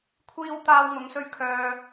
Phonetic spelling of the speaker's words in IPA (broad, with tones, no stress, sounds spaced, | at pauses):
kʷʰ iː˥ w t̪ aː˧ w ŋ ʊ˨˧ ŋ s ɵ˧ ɥ kʰ œː˧